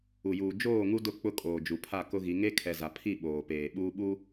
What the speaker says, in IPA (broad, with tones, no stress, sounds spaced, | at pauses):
u˨ j uː˨ d͡ʒ oː˦˨ ŋ u˦ d ʊ˦˨ k͡p ʊ˦ kʼ oː˨ d͡ʒ u˨ pʰ a˦˨ k ʊ˦ ɣ i˨˦ ŋ e˦ kʰ ɛ˨ z a˨ pʰ i˦˨ ɓ oː˨ p eː˨ ɓ uː˦ ɓ uː˦